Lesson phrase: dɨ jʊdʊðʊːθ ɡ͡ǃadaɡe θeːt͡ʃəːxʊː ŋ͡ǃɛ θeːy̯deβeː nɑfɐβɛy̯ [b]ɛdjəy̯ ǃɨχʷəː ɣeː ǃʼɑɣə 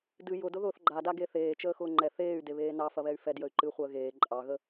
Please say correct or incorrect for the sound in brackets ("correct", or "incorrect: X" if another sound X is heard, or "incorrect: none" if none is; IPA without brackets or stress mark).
incorrect: f